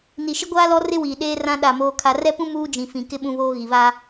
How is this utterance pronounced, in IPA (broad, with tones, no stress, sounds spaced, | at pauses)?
n i˨ ʃ ɪ˦ ɡʷ aː˦ l ɔ˦ r ɪ˦ w iː˨ ɗ eː˦ r ã˦ ɗ a˦˨ m oː˦ kʰ a˦ r ɛ˦ p ũ˦ m uː˦ d͡ʒ ĩ˨ f ĩ˨ k ɪ˦ ɓ ũ˦ β oː˦ ɣ i˨ β a˦